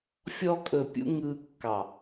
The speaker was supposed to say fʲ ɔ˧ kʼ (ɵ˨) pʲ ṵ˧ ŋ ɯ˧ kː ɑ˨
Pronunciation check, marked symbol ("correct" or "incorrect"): correct